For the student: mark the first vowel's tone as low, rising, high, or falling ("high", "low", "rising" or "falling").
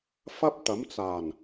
high